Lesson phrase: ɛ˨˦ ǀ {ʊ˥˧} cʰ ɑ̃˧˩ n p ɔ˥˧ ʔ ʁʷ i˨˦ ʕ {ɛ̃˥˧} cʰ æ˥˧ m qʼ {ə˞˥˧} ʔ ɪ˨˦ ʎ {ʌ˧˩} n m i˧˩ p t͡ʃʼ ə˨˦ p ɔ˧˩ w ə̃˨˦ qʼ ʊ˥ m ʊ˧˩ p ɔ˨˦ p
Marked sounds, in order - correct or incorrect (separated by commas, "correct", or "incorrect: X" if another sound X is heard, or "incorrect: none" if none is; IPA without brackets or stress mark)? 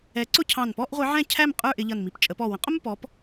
correct, correct, correct, correct